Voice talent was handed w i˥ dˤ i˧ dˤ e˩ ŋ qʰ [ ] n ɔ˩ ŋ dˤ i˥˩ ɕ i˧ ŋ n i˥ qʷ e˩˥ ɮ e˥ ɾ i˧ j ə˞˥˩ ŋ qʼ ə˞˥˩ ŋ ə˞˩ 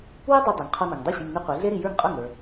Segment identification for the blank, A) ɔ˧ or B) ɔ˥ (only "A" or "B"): A